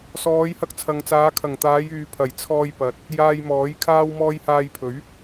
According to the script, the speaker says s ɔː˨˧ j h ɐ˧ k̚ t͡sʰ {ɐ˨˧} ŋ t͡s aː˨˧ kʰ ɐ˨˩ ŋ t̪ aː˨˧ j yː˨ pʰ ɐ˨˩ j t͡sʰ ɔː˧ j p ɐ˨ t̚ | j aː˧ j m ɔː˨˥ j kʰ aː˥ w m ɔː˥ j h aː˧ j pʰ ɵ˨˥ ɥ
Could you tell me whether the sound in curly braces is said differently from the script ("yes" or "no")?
yes